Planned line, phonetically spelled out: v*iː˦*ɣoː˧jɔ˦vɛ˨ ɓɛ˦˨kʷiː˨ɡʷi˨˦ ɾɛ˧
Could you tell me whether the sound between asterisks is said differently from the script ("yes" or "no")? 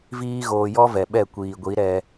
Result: no